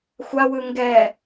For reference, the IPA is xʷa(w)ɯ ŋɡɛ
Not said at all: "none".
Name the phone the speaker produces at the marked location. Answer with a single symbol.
w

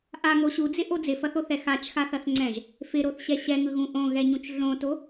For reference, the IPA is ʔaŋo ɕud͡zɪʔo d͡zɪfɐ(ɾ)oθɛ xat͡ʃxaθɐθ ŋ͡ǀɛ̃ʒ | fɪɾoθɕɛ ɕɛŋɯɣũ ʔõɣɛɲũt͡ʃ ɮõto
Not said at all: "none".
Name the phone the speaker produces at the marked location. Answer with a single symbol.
θ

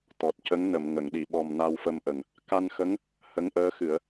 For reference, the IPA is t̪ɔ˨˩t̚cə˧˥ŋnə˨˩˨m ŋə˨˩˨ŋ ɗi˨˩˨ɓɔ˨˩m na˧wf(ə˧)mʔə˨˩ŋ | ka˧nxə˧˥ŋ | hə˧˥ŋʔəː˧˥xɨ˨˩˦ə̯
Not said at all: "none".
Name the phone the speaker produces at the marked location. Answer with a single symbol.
ə˧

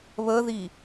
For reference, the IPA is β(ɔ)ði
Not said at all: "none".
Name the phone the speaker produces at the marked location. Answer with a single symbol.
ə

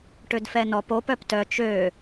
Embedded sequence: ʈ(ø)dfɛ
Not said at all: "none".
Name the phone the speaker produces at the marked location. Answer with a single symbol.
ø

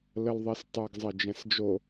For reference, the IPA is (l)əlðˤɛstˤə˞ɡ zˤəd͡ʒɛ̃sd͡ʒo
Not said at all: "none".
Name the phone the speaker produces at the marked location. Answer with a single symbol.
l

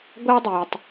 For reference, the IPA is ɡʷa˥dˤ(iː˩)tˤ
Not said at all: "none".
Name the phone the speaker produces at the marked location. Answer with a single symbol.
iː˩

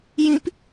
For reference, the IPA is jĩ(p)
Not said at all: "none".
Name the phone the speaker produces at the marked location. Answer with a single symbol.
p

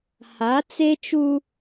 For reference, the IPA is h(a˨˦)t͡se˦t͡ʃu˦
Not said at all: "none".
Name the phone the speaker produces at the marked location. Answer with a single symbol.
a˨˦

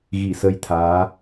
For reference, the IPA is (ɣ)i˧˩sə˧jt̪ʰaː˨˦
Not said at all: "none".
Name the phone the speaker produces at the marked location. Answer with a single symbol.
ɣ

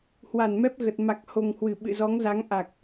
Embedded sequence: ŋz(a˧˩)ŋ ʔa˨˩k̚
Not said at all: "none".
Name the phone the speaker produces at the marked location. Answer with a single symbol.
a˨˦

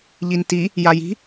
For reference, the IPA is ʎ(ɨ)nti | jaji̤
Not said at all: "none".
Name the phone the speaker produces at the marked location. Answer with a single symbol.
i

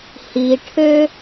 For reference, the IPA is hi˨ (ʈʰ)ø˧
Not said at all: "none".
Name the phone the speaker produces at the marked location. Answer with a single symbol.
ʈʰ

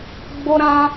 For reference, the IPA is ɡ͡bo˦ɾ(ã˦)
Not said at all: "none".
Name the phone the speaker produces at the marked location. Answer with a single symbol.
ã˦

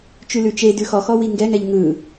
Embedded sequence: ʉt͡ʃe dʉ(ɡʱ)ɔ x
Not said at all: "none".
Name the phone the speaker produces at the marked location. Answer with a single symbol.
x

